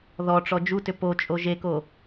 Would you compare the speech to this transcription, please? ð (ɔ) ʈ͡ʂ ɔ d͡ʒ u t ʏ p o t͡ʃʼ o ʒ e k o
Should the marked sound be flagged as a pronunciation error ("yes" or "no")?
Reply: no